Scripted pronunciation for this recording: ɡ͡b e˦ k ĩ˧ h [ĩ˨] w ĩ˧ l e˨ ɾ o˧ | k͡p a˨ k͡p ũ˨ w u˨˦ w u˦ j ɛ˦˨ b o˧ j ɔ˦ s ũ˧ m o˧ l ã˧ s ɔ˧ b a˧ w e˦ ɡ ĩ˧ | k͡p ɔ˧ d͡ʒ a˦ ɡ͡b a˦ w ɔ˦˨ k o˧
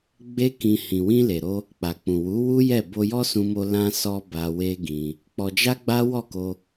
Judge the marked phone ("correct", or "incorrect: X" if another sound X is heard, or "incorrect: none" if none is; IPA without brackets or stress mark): correct